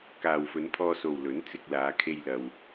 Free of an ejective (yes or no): yes